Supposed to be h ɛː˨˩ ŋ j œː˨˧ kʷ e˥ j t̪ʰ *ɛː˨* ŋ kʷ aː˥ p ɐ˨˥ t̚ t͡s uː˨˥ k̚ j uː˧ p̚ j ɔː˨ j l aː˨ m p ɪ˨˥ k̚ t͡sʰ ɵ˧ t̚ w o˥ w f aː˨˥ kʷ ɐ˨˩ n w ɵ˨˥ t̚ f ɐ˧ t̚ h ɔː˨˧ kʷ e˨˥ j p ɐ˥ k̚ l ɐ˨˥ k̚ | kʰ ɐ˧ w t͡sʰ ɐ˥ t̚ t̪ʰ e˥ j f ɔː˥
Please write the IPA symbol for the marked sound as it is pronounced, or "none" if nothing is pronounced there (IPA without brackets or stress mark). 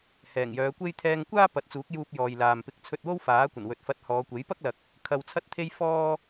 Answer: ɛː˧